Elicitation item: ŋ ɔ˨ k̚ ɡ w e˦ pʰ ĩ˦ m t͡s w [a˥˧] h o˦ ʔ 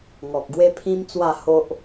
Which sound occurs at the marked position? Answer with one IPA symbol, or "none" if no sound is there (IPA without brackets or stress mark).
a˥˧